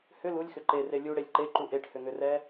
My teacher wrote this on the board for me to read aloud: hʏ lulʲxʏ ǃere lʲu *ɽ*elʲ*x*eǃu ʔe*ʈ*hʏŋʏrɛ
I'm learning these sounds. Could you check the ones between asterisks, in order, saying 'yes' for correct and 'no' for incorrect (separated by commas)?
yes, no, yes